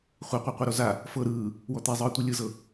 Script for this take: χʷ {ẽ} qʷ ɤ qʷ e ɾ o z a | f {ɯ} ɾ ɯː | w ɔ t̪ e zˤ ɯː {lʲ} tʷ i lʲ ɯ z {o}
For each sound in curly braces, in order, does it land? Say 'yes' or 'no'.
no, no, no, no

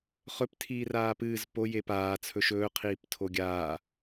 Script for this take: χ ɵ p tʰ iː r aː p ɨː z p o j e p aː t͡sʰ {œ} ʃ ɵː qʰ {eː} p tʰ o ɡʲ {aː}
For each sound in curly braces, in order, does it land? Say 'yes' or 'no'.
no, no, yes

